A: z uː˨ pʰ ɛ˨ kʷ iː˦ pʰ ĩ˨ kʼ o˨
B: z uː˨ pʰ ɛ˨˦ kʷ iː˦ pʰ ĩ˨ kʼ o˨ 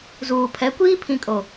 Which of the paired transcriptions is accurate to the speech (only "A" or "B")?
B